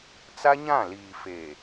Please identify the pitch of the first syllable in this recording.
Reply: high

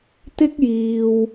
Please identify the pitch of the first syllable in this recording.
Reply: high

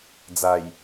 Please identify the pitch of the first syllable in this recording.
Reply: low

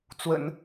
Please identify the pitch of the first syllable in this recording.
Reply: low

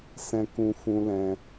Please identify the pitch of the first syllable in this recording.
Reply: high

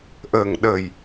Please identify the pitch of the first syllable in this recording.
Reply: low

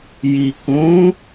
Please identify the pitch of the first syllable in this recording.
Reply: low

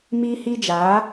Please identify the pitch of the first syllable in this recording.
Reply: high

